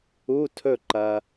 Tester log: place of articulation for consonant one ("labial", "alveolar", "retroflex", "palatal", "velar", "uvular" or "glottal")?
alveolar